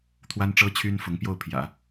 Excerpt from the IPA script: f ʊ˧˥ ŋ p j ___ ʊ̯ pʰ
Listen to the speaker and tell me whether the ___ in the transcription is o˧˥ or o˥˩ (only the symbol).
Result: o˥˩